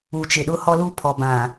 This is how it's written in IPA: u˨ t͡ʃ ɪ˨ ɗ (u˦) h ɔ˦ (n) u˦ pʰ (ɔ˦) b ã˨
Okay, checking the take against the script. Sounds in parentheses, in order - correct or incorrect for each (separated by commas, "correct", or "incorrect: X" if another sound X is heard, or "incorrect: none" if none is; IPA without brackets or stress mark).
incorrect: ʊ˦, incorrect: l, incorrect: ɔ˨